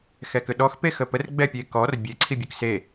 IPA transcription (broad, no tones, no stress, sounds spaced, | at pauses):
x ɛ k ʏ ɗ ɔ x p e x ə p ə r ɡ͡b ɛ pʲ e k ɔ r bʲ e ǀʰ i bʲ ʉ k s e